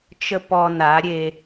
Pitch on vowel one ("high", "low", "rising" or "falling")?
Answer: high